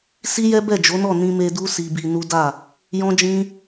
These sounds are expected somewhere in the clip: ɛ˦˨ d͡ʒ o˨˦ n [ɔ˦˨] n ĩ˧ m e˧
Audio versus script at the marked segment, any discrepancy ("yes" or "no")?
no